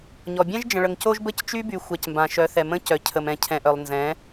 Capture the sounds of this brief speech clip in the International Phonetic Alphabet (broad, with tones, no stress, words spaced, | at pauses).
ɲɔ˨ bʲɛ̃˦ʒd͡ʒə̃˨ɭə˨ŋ co˦ʒbə˦c t͡ʃy˦by˨ xʷa˨cmbã˨ ʃœ˨˦θɛ˨ mə̃˦cœ˨cʰə˨mɛ̃˨ cʰɛ̃˨ʔœ˨lˠnzɛ̃˨˦